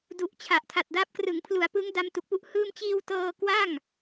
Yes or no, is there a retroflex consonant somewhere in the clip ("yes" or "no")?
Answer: no